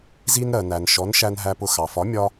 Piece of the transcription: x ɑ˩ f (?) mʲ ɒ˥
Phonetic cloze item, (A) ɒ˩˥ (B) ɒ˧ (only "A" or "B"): A